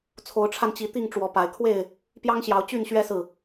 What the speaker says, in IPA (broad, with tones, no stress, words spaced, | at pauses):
t͡sʰo˨˦ʊ̯ʈ͡ʂʰa˧nt͡ɕi˨˦ t̪i˥˨ŋ ʈ͡ʂwɔ˨˦pa˨˦ɪ̯kʰwe˥˨ɪ̯ | pjɑ˦ŋɕjɑ˨˦ʊ̯ t͡ɕy˥˨nɕɥɛ˦sɹ̩˨